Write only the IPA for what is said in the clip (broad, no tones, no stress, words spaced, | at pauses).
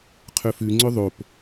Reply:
qʰɵfʉ ŋ͡ǀɵðˤop